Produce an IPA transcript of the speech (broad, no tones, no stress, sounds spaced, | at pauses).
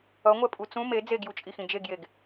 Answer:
ʌ ŋʷ ɛ pʼ u t͡s ũ m e d͡z e ɡ j u t͡ʃʼ i x ĩ d͡ʒ e ɡ j e ɡ